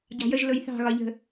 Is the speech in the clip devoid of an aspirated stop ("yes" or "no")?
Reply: yes